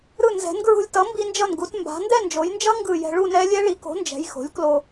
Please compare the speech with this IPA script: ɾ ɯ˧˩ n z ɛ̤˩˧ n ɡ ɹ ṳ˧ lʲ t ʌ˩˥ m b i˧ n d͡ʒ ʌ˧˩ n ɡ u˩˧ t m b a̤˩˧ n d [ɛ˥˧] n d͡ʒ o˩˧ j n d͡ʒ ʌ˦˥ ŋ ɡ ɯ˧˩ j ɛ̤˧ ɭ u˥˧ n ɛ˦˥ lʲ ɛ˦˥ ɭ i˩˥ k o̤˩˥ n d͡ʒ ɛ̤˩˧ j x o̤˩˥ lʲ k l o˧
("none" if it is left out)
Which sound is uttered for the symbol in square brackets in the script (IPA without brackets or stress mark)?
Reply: ɛ˥˧